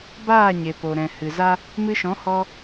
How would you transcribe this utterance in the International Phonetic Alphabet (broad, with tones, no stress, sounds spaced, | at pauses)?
b aː˦˨ ɲ e˨ p o˨ ɾ ɛ̃˨ h ɨ˨ z a˦ | m ɨ˧ ʃ ɔ̃˨˦ h ɔ˧